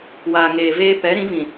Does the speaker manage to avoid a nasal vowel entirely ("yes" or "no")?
no